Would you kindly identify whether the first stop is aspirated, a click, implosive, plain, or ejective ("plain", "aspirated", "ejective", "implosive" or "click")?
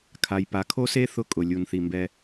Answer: aspirated